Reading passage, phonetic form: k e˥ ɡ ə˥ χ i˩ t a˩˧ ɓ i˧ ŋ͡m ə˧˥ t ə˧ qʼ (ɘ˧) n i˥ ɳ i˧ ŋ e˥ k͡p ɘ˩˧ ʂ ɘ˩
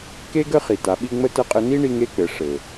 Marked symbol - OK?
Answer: yes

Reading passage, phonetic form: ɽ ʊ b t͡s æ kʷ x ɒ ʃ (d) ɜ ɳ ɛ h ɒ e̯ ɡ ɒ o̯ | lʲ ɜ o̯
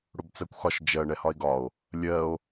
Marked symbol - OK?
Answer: no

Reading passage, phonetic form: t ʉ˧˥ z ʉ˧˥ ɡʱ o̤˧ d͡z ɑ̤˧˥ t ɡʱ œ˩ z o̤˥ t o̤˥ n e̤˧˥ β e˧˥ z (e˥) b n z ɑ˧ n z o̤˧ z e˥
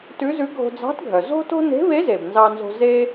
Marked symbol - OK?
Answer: no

